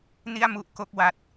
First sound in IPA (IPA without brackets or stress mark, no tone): n